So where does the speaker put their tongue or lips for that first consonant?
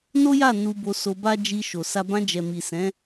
tongue tip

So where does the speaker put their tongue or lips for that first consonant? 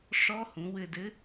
retroflex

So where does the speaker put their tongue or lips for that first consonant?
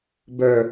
lips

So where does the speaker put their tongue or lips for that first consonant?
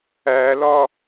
tongue tip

